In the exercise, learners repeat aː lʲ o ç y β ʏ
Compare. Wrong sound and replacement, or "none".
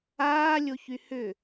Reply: β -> h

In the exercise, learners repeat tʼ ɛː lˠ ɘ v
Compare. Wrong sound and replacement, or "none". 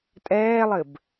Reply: v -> b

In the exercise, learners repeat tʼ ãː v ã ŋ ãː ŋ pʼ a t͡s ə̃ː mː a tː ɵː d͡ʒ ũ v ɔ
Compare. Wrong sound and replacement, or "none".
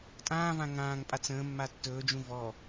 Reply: none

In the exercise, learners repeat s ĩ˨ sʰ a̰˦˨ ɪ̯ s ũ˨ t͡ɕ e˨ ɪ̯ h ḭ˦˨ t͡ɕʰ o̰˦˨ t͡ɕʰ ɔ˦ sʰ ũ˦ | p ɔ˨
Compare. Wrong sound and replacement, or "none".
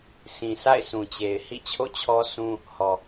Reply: p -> h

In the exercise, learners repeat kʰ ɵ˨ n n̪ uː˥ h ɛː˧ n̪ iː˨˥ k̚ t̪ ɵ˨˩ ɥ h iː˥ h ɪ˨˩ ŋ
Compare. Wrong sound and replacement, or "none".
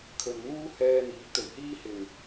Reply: none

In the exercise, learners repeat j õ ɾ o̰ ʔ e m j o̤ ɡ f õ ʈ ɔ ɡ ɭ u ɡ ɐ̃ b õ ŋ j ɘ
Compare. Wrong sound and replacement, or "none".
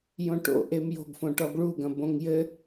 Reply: ɾ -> ʈ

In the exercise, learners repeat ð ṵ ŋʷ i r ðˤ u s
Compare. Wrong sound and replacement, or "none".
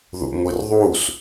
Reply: none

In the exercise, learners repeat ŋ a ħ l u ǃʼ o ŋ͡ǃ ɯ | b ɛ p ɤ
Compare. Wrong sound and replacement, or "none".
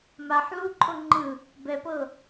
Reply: ŋ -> m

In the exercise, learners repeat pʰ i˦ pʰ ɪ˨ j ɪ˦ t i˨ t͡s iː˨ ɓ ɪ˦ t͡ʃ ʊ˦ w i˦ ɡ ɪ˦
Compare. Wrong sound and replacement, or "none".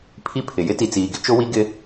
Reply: ɓ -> ɡ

